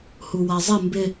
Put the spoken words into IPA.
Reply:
huwazˤɪ mbɪ

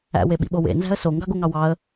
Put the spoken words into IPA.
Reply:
æ̰ weɓḭɓowḛ nzæ̤ə̯so ŋɡɑɡoŋɑwɑə̯

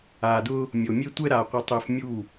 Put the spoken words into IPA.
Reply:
aː˨dʊː˦ | mʲo˨ mʲe˦tʷɛ˦ɾaː˨ qʷɪ˦tˤɪː˦f mʲu˦˨

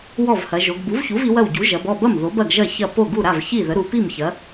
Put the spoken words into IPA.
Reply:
wɔ˥˩vhɐ˩˧ʒo˩˧ɡ bu˩˥vçu˩˥v i˩˥wɐ˥˩w ɟu˩˥ʒɐ˩˧bɔ˥˩bɐ˥˩m ðo˩˥b ɐ˥˩ɡʒɐ˥˩ çɐ˥˩ po˥˩ɡu˥˩ ɾa˥˩vçi˥˩ðə˩˥ ɾu˩˧pi˥˩m çɐ˩˥

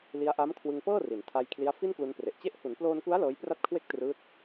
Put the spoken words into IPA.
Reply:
li˦˥a̯ʔa˦˥mkʰwɯ˧ŋ pɤː˥˩ri˩˦ntʰa˧j kʰli˦˥a̯ fi˥˩nklu˧npre˨˩ʔt͡ɕe˥˩ʔ hu˩˦nploː˧nku˦˥a̯ lɤː˦˥jpra˥˩t̚kʰwe˥˩k̚ trɯː˦˥t̚

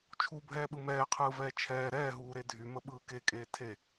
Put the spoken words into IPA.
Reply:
t͡ʃʰubʱɛːɓɯ mɛːqʰɯːvɛː t͡ʃʰɛː ɾɛːɦuːɾe dʱyməɓɯː kekʼeː tʰe

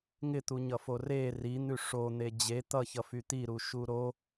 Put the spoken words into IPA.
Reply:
ŋɪt̪uɲʌfo re rin̪ʉ ʂon̪e d͡ʑe t̪ʌçʌfy t̪iɾuʃu ɾo

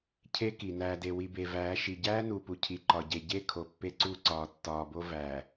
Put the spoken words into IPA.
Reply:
cʰe˦ki˨ næː˨de˨ wi˨be˨væː˨˦ʃi˨ ɟæː˦nu˨pu˨ cʰi˨ǃɒ˨ɟe˨ ɟe˦˨ kʰo˨pːe˦ǀu˦˨ǀɒː˨ tːɒː˨bo˦ væː˨

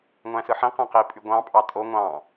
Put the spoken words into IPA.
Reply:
ŋʷæ̃sɯħĩ qæ̃qi pʼyɡʷɑ̃ pʼɑtʼo ŋʷɑ̃

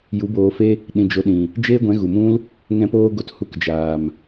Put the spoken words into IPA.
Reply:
ju˨˦boː˧fe˦ | ɗĩ˨d͡ʒo˨ɗĩ˨ | d͡ʒeː˦ɡʷɛ̃˨˦ɣu˨mũ˦l | ŋɛ̃˧poː˧ɡo˨t hu˧kd͡ʒaː˨m

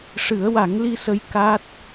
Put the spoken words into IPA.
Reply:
ʂɨ˨˩˦ə̯wa˨˩˦ŋli˧sə˧j ka˦˥t̚

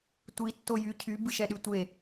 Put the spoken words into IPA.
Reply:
tʷi tːojy cʰy bɨʃɛɗytʷe

